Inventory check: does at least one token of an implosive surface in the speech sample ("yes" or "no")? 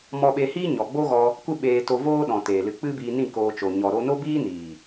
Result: yes